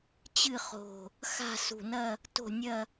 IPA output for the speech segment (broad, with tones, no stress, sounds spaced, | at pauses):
t͡ɕ ɨ˥˧ χ o̤˧˩ | x a̤˥˧ s ṳ˧˩ n ɐ˥˧ | t o̤˥˧ nʲ ɐ˥˧